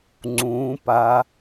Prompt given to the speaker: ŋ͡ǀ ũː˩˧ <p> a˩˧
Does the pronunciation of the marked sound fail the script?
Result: no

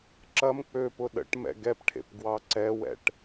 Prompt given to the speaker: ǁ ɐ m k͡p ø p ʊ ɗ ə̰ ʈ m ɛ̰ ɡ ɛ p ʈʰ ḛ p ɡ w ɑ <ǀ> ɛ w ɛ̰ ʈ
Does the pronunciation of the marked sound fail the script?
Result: no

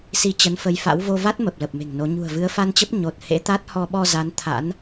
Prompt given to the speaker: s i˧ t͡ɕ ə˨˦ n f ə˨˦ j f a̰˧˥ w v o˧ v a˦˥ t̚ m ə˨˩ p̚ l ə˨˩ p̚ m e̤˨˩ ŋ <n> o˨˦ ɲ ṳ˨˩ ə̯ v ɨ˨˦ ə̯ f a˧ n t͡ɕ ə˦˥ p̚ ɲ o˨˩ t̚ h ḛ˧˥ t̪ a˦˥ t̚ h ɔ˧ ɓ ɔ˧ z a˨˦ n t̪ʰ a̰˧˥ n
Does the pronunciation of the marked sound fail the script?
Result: no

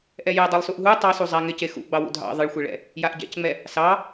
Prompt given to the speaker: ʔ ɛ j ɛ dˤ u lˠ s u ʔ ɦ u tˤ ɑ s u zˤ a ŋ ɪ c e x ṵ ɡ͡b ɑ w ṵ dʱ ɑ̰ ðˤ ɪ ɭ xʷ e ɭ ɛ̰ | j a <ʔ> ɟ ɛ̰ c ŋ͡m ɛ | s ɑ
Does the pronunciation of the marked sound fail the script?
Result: no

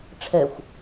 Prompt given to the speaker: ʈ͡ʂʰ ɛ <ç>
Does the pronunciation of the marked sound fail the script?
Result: yes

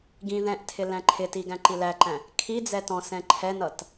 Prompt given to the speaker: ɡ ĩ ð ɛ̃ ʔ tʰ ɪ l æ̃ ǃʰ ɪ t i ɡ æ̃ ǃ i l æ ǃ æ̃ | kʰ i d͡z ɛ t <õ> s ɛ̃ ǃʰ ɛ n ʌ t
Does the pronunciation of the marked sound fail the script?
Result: yes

